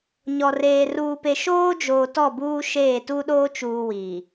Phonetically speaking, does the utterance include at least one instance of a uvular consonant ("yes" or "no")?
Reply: no